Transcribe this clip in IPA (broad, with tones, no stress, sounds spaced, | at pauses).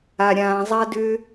a˨ ɾʲ ãː˨ zˤ a˦ d ʏː˦